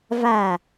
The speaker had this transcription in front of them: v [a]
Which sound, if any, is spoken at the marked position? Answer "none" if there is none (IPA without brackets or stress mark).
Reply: a